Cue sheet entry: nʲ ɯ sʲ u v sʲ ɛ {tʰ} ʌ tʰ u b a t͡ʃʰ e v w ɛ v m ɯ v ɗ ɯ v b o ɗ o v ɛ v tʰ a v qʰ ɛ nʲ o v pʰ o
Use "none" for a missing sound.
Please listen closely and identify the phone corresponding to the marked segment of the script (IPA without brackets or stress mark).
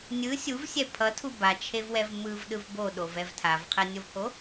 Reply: pʰ